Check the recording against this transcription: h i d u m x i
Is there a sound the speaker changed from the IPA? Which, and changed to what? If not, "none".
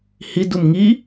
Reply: x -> ŋ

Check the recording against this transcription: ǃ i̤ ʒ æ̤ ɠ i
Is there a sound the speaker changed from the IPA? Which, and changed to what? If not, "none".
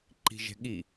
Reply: æ̤ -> ɛ̤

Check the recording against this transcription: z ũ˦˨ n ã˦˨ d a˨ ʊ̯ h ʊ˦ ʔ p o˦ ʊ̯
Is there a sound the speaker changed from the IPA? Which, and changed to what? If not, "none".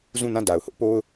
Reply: none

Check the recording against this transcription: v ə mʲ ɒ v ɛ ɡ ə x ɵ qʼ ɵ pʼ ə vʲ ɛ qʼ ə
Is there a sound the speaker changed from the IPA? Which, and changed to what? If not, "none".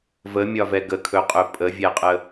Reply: x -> kʰ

